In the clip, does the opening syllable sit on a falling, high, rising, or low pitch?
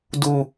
low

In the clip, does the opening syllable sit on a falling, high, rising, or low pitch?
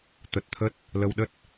low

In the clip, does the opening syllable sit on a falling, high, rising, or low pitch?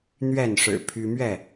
falling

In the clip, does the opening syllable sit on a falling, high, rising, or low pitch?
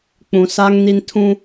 low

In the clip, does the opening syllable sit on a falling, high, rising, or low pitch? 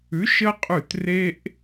rising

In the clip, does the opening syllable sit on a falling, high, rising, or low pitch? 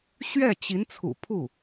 falling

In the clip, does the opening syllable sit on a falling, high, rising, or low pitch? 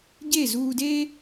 falling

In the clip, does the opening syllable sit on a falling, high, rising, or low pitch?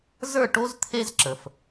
falling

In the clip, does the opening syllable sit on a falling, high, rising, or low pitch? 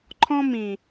high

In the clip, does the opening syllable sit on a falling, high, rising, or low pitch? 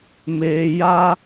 low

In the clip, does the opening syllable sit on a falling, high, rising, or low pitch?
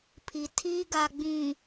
low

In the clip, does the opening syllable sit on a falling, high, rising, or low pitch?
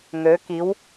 rising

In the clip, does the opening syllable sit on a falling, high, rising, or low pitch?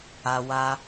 high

